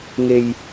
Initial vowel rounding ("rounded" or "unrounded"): unrounded